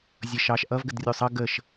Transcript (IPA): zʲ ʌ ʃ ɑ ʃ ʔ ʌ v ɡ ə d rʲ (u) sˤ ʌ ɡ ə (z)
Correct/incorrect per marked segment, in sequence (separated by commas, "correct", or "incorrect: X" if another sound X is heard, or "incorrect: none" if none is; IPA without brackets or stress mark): correct, incorrect: ʃ